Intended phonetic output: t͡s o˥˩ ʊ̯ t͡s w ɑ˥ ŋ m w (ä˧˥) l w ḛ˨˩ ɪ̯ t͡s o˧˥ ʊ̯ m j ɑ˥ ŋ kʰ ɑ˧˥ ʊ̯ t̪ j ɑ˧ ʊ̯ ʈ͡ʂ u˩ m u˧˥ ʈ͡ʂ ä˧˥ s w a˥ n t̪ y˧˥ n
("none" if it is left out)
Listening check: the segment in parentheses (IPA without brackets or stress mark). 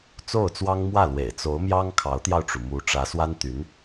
ä˥˩